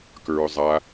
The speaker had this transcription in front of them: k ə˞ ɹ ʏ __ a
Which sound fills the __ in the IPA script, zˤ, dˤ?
zˤ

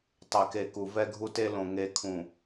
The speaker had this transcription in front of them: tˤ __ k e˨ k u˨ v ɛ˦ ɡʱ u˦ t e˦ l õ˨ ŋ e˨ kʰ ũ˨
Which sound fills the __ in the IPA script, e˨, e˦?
e˨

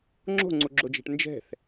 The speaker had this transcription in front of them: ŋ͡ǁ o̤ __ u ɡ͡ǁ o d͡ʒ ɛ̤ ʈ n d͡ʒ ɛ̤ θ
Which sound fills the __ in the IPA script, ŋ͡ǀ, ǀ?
ŋ͡ǀ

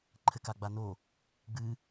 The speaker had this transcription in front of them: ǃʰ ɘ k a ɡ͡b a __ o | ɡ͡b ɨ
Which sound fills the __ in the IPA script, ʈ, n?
n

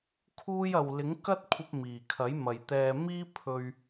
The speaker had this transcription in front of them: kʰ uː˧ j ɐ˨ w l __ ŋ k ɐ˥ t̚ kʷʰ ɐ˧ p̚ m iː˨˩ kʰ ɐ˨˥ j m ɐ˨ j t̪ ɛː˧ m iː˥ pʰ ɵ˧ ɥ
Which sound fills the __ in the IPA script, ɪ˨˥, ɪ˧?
ɪ˨˥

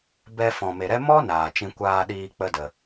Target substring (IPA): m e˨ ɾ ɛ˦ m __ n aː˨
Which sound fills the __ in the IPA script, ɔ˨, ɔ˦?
ɔ˦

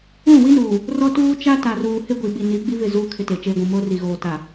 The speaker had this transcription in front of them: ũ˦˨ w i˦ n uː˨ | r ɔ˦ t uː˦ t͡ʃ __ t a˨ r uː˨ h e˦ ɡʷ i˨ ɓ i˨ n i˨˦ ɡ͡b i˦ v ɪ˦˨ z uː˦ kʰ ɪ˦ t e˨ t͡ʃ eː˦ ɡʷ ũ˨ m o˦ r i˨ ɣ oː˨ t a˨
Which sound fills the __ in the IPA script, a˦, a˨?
a˦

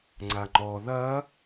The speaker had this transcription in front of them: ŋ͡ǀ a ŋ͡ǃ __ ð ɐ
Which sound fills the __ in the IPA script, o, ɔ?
ɔ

